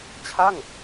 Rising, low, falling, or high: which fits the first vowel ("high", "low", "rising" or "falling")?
falling